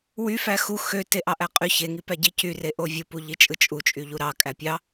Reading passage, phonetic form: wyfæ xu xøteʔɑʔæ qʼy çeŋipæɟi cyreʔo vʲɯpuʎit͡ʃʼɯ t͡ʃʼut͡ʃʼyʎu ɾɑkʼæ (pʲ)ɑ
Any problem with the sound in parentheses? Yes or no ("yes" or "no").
no